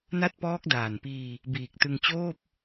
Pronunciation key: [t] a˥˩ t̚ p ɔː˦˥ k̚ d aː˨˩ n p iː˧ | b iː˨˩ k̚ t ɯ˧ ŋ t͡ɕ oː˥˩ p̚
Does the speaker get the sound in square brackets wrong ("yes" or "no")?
yes